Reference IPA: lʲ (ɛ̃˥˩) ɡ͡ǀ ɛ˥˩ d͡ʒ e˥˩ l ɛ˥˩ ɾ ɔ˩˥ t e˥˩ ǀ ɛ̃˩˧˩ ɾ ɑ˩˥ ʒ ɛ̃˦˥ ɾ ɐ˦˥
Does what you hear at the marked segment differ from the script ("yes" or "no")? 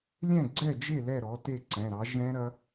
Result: no